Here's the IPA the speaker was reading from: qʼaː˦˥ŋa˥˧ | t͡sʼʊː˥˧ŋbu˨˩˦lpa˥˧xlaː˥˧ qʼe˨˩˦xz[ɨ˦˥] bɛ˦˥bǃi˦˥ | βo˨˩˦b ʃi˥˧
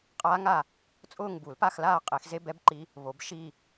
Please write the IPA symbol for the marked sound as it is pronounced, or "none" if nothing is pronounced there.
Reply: e˦˥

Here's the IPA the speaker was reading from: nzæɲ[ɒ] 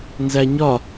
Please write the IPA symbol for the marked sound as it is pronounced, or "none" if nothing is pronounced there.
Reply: ɒ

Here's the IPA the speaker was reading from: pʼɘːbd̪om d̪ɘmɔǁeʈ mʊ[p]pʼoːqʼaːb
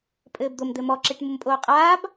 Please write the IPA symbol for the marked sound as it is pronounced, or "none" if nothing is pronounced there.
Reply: m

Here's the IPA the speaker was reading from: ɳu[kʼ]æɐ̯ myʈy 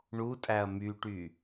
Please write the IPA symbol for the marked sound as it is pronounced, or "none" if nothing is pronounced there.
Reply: tʼ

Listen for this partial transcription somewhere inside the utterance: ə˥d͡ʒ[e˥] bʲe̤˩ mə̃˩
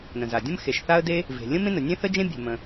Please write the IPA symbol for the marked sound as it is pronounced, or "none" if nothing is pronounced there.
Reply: ẽ˥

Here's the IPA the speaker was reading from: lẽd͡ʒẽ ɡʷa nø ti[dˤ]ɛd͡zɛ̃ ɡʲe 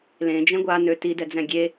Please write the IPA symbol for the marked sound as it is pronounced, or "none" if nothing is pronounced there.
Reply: d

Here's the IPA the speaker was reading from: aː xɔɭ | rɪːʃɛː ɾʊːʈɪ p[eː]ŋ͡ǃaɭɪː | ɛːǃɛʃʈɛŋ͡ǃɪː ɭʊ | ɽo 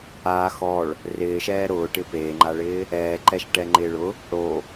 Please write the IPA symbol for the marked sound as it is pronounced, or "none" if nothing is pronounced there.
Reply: eː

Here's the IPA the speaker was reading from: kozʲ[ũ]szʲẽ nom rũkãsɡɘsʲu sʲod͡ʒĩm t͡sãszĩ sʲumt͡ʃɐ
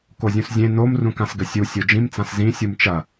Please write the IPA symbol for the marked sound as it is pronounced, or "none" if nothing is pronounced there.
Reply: ũ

